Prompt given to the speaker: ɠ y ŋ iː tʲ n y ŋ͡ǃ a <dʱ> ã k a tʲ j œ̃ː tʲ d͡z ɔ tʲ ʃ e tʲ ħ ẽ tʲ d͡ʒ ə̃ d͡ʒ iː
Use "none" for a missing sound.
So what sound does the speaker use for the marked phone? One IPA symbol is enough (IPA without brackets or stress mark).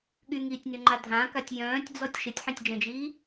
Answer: dʱ